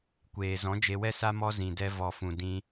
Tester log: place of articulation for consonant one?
velar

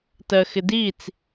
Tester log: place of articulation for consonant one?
alveolar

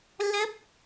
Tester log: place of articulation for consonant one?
alveolar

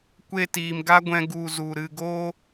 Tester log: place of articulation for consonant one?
velar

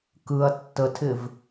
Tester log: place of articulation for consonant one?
velar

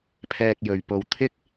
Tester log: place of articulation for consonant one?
labial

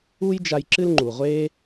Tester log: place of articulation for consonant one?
palatal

